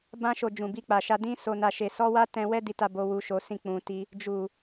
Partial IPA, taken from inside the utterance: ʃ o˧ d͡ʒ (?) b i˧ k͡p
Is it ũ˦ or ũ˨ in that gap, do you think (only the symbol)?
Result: ũ˨